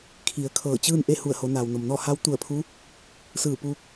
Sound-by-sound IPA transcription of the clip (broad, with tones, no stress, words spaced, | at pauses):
kʰi˩˧ə̯kʰɤː˧˩t͡ɕɯː˥˨n ʔe˥˨hu˧˩ə̯ho˩˧ naː˩wno˩mnɔː˥˨ ha˧˥wt̪u˧˩ə̯pʰu˧˥ | sɯː˧˩puː˧k̚